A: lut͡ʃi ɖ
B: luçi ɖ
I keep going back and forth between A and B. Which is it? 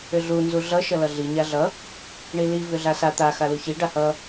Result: B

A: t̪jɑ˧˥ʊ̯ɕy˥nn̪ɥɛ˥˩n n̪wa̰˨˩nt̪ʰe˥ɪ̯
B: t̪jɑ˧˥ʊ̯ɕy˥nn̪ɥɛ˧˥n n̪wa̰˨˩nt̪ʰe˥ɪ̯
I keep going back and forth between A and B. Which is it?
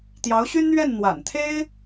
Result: A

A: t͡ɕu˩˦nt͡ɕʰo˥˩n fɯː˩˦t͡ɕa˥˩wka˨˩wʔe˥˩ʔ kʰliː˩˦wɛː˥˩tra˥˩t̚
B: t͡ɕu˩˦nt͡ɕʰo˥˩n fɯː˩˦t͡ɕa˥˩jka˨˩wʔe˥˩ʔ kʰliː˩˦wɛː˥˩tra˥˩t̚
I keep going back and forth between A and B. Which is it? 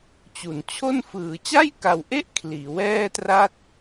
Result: B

